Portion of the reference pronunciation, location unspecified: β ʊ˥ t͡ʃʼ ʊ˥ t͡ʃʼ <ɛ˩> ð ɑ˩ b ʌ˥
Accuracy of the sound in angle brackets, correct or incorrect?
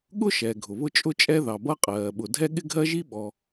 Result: incorrect: ɛ˥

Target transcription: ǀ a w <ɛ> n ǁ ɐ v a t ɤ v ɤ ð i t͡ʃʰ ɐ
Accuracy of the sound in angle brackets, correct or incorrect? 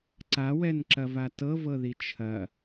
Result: correct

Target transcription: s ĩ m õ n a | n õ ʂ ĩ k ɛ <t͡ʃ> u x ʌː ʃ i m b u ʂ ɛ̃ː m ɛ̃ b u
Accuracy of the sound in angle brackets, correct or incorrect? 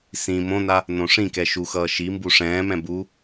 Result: incorrect: ʃ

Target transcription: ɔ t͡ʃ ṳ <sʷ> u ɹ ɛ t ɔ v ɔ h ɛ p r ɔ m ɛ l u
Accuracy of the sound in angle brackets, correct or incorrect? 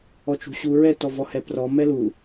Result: incorrect: ɕ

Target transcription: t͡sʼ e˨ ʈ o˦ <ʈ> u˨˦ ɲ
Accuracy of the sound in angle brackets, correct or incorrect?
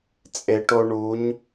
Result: incorrect: ɳ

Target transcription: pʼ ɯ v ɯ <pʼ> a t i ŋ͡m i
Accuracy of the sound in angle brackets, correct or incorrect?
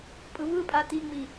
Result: correct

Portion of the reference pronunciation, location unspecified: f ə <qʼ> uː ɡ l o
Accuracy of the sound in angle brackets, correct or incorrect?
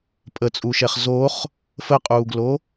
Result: correct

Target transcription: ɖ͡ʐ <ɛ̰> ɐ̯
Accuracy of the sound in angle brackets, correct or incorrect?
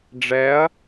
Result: incorrect: ɛ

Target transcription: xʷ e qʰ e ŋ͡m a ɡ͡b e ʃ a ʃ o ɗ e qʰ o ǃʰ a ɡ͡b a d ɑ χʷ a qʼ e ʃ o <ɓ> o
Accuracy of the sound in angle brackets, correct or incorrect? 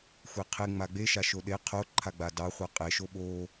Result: correct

